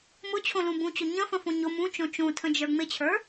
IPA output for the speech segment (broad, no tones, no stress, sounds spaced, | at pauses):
m ʊ t͡ɕʰ õ l ũ b ũ t͡ɕ ʊ ɲ ə̃ f ə̃ f õ ɲ ʊ m ũ t͡ʃ õ t͡ʃ ũ tʰ ə̃ d͡ʒ ə˞ ŋ͡m ɪ t͡ɕʰ ə˞